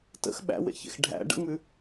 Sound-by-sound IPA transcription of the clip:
tə̰x ɓæ̰wḛçḛx ɖʱæ̰ ɖə̰ŋ͡mʉ

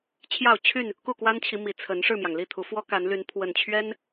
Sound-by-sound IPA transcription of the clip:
t͡ɕʰjɑ˥˨ʊ̯ t͡ɕʰy˥˨n | ku˥˨kwa˦nt͡ɕʰi˨˦mi˨˩ t͡sʰə˨˦n ʂɻ̩˥˨mjɑ˩ŋli˥˨t̪ʰu˨˦ fwɔ˦ka˨˦nly˨˦n pʰwə˨˩nt͡ɕʰɥɛ˦n

